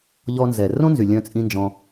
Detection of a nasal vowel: present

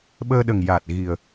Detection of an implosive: present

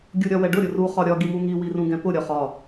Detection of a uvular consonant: present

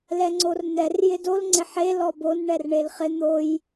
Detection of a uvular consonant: present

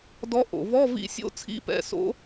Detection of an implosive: absent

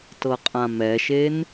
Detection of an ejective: present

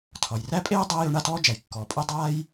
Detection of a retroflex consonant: present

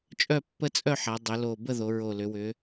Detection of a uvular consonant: absent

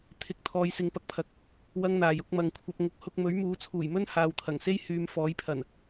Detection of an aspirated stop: present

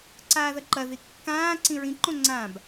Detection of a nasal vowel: present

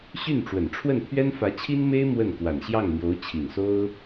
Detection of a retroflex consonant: present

